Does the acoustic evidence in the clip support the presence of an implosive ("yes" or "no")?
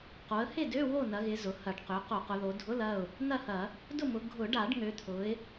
no